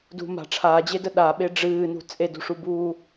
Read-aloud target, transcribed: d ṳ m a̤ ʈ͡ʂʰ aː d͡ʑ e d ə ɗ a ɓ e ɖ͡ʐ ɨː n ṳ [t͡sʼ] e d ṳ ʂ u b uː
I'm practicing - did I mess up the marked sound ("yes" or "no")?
no